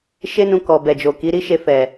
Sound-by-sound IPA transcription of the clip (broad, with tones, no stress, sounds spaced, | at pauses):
ʃ e˦ n ũ˧ k ɔ˨ b ɛ˨ d͡ʒ o˨ k i˨˦ ɾ i˦ ʃ e˧ f ɛ˨